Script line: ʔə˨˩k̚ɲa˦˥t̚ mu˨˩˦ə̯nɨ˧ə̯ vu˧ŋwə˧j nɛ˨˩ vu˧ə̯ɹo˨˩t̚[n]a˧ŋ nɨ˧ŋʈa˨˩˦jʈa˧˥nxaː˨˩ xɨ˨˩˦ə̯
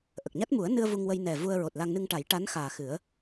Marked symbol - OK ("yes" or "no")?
no